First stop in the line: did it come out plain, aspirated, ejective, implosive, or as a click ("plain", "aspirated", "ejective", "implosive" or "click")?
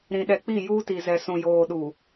implosive